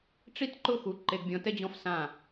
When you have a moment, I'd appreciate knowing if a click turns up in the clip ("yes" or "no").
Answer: yes